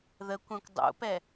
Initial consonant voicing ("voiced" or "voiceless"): voiced